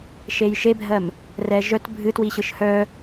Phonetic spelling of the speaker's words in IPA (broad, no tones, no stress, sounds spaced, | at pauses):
ʃ e j ʃ e bʱ ɜ m | r ɛ ʒ œ t bʱ ɨ t w i ɕ ɯ ʃ h œ